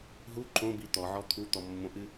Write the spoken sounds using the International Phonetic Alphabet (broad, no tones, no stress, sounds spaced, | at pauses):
ɦ u ǃ õ b i t̪ ɔ ʕ ɔ t̪ʰ u t̪ ɔ mː õ ʔ ɨ